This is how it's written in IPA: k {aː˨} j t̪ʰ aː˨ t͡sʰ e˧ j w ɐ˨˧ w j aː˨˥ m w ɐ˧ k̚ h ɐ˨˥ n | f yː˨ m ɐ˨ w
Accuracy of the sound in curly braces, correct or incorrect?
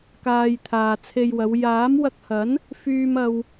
correct